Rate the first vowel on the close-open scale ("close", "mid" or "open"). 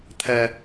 mid